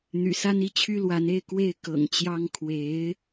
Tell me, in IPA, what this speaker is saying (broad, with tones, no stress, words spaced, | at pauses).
n̪y̰˨˩sa˥ni˥˩t͡ɕʰy˥ lwa˧˥ne˥˧ɪ̯ kwe˥˩ɪ̯ kɤ̰˨˩ŋt͡ɕjɑ˥ŋ kʰwe˧˥ɪ̯